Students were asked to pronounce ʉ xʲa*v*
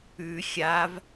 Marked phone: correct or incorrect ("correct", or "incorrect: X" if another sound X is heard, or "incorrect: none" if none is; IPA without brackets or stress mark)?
correct